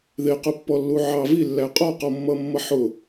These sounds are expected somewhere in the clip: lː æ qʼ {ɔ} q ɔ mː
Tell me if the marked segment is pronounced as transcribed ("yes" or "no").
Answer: yes